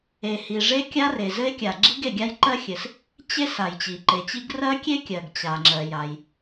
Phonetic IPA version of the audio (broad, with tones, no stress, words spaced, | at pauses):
e˩hi˩ ʐe˥kʲa˥ re˩zɘ˥e̯kʲa˩ ɡ͡ǁi˥ɡe˩ɡʲa˥jǃɜ˥ xʲɘ˩s | t͡ɕe˥s a˩jt͡ɕi˩ǃe˩t͡ɕi˥ɡ rɜ˥kʲe˥kʲɜ˩ɡ t͡ɕa˩ŋ͡ǁɜ˩ ja˩j